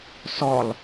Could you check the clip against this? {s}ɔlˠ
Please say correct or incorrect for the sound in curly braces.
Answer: correct